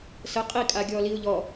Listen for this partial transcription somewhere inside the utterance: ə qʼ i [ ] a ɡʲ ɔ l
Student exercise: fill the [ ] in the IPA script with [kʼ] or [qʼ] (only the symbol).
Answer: kʼ